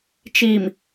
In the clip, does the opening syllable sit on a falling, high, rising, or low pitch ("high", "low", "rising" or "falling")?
low